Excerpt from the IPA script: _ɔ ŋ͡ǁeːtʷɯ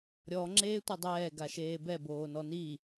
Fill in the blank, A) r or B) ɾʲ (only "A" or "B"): B